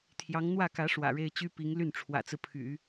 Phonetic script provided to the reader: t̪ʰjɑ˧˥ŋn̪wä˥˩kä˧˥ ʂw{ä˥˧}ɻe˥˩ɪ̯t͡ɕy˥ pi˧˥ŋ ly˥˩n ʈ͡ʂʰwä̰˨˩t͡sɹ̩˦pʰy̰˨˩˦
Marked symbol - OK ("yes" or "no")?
no